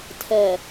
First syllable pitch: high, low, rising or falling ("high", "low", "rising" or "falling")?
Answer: low